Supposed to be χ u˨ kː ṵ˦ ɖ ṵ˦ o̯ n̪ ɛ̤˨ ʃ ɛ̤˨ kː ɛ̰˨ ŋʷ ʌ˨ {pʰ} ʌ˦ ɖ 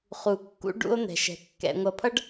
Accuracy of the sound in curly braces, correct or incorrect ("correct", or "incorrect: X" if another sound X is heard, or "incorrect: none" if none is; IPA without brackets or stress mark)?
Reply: correct